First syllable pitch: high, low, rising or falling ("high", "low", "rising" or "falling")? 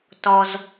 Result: low